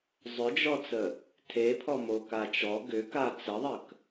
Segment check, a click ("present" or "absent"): absent